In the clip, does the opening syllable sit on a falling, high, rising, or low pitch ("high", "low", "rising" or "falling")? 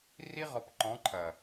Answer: high